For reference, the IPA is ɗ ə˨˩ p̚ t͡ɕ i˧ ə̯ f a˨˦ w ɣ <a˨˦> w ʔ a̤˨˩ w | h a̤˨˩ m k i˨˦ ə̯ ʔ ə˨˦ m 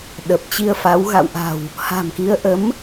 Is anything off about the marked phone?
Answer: yes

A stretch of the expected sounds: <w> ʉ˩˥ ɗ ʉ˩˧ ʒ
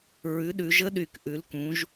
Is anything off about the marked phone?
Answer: yes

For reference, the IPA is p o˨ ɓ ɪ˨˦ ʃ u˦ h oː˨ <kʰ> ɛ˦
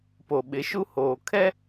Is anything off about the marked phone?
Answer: no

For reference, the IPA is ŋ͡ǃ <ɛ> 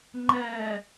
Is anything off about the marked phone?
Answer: no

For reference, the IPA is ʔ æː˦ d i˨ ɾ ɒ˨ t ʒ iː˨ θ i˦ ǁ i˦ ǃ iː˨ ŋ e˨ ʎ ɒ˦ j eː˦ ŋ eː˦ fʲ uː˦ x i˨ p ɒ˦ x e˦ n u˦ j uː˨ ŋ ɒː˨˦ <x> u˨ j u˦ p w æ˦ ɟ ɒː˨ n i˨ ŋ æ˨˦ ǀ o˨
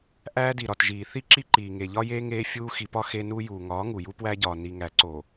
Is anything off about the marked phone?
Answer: yes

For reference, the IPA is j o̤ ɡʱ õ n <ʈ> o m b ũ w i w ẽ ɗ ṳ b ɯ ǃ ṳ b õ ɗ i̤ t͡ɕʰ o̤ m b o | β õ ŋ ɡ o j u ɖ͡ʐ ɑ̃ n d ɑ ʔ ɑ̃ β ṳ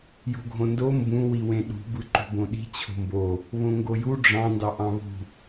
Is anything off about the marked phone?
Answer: yes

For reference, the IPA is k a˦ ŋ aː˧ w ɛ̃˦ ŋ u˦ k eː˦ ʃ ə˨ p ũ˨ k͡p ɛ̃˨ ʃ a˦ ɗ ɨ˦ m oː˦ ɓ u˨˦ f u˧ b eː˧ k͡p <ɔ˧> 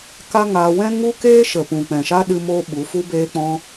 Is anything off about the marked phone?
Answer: yes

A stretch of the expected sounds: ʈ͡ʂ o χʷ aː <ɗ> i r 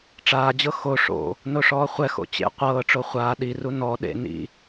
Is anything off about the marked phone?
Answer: no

